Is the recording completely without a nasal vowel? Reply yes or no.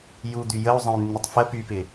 no